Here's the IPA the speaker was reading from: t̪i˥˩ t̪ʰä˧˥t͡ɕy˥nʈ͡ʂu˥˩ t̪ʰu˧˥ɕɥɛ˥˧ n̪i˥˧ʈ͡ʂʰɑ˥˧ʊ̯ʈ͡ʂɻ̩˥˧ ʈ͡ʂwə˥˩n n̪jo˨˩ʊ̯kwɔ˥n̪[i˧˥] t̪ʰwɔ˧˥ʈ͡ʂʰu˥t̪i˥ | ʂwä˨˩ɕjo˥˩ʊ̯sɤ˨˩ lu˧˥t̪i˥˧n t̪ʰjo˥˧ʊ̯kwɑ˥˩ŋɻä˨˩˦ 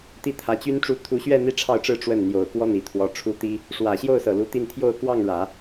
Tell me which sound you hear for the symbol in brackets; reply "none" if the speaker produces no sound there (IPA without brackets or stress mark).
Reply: i˨˩